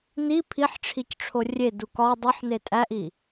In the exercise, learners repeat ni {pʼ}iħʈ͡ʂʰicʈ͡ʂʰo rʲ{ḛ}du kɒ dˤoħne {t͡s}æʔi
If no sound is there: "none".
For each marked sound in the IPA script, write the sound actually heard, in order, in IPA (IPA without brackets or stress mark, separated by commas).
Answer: pʰ, e, tʼ